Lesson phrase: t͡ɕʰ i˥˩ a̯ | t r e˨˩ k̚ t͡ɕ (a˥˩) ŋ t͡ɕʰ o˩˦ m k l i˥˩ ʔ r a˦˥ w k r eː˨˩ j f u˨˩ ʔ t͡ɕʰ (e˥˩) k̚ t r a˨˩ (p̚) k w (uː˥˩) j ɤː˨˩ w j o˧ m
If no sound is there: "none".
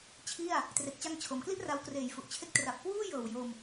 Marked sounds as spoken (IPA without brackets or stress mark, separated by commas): a˧, e˥˩, p̚, uː˥˩